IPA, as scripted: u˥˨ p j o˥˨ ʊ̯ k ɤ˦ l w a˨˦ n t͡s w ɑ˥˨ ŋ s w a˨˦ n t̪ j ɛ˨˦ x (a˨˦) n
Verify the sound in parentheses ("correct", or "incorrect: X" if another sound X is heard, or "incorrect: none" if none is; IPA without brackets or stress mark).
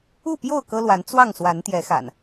incorrect: a̰˨˩